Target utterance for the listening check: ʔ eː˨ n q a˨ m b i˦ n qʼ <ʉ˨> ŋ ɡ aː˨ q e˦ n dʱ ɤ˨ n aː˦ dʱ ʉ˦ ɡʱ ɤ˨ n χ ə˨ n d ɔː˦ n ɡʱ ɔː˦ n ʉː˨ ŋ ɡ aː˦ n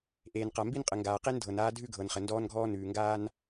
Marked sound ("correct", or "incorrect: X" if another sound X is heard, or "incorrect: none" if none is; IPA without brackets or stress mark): incorrect: ə˨